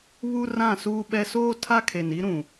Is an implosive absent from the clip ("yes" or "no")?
no